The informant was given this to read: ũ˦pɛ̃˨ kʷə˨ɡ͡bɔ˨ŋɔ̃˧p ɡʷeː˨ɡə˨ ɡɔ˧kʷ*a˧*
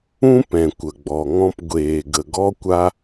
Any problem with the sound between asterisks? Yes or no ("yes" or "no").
no